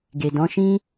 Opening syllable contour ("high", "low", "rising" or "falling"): low